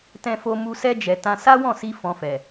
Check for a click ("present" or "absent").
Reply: absent